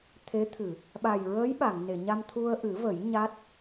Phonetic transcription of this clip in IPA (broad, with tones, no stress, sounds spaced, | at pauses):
t̪ʰ e˧˥ t̪ʰ ɨ˨˩˨ | ɓ a˨˩ j ɹ əː˧˥ j ɓ a˨˩˨ ŋ n e˨˩˨ ɲ a˧ m t̪ʰ u˧ ə̯ ʔ ɨ˨˩˦ v ə˨˩˦ j ɲ a˦˥ t̚